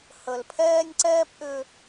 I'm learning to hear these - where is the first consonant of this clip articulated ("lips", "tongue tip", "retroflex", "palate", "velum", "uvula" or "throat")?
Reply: throat